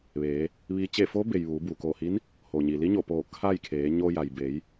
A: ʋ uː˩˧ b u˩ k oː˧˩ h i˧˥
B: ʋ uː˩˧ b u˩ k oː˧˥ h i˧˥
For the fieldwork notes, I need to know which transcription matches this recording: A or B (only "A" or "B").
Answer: A